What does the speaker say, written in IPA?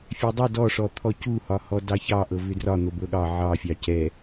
fʲ ɛ dˤ o d ɔ ʂ ɔ t̪ʰ ɔ c u h ɒ h ɔ d ɑ ç ɑ ʔ ɤ v ʏ d r ɒ n̪ o b ɤ ɠ ɑ ʕ ɑ fʲ ɑ c ɛ

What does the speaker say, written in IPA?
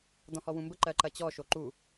d ɔ̃ h ɔ w ũ m b ə ǃ ɜ ǃ ɐ t͡ɕ ɔ ʃ o ǃ u

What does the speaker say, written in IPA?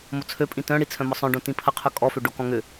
m o t͡sʰ ø pʼ ĩ t œ̃ ɽ i t͡sʰ œ̃ m ɔ sˤ œ̃ ɖ õ t ĩ pʰ ɐ qʰ œ kʼ ɔ f ø ɖ o k ɔ̃ ŋ ʏ

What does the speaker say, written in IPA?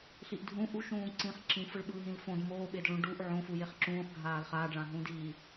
ɬ i ʔ dʱ ũ ʔ u ʃ ũː ǀ ĩ χ ǁ ĩ f ɯ ɭ ɓ ɯː ɦ ĩ l f õ d m oː ɓ e d ɭ ũ ɖ u ʔ ʕ õ f u j e χ ǁ ũː χ ɡʱ aː l χ aː ɖ ɭ ã ɦ ũ d i

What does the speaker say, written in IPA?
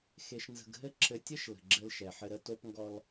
x e˨ ʃ n z ə̤˨ ɡ ɦ ɘ˦ ǁʰ ɘ˨ tʲ ɘ˦ ʃ l ə̤˨ ɡ͡ǁ ɘ˦ l ʃ ɛ˨ ħ ɘ˦ ɾ ə˦ t o˦ p ŋ ɡ ɔ˦ l

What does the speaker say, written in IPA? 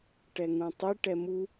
ʈ ɛ ŋ ũ tˤ i ʈ ɛ m u

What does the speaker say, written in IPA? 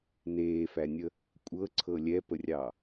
n eː f æ nʲ ə | kʷʼ ɤ ǀʰ ɤ lʲ ɛ p ə rʲ ɑ

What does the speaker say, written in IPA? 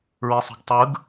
ɹ e sˤ e̤ ɡ tˤ ɯ ɡ

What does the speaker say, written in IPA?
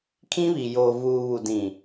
kʰ ĩ˦ β i˨ j oː˨ v uː˨ β u˨ d ĩ˨

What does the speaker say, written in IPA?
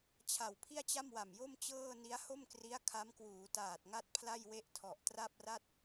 t͡ɕʰ a˨˩ w pʰ i˥˩ a̯ t͡ɕ a˥˩ m w a˨˩ m j o˥˩ m t͡ɕ ɤː˥˩ n i˦˥ a̯ h o˥˩ m k r i˦˥ a̯ kʰ a˦˥ m k w uː˩˦ t aː˨˩ t̚ ŋ a˥˩ t̚ pʰ l a˥˩ j w e˥˩ ʔ tʰ ɔ˨˩ ʔ t r a˥˩ p̚ r a˥˩ t̚

